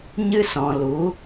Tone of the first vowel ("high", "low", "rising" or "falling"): high